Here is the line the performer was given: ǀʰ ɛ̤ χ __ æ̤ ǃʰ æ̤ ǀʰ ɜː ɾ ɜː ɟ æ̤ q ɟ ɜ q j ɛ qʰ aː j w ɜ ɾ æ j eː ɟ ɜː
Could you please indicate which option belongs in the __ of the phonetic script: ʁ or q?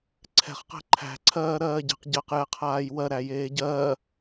q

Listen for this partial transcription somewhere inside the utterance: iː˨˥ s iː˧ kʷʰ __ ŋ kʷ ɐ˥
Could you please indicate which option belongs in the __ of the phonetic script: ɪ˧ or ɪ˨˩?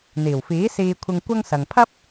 ɪ˧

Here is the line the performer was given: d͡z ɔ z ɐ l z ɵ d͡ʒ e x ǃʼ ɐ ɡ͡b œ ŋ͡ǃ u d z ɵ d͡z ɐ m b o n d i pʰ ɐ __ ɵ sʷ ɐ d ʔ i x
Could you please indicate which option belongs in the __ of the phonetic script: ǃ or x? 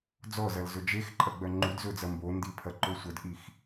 ǃ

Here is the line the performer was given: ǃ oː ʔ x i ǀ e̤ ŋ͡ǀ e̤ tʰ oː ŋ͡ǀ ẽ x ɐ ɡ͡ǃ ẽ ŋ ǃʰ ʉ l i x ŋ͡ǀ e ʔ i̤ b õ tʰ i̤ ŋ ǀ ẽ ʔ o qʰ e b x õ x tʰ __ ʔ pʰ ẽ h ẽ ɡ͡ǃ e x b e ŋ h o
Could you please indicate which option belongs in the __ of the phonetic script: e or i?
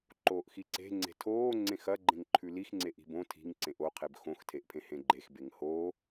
e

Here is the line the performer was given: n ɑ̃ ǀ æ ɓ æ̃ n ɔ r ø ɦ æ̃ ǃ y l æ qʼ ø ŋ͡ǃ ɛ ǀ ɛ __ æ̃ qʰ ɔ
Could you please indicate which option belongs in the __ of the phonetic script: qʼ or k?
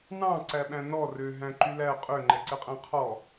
qʼ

